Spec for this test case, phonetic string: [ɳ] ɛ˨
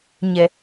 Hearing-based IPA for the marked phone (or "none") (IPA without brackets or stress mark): ɲ